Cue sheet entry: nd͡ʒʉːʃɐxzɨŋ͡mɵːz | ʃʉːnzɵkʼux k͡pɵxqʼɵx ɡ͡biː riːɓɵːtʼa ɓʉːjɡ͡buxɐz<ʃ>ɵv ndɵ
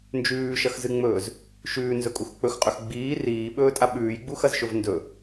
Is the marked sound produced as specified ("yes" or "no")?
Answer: yes